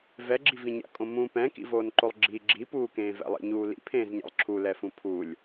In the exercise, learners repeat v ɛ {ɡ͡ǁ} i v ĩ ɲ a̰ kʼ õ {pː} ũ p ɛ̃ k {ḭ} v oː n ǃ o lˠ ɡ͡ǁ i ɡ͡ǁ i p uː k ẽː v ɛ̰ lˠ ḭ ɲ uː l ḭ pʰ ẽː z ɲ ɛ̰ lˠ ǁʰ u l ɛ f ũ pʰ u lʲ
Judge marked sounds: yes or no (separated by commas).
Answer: yes, no, yes